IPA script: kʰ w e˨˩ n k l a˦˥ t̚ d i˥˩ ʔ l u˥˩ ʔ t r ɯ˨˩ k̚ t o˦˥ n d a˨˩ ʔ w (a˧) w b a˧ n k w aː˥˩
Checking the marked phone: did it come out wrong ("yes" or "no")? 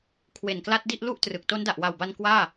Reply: yes